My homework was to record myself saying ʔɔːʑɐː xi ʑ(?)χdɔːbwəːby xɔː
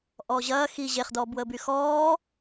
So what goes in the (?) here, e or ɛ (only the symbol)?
e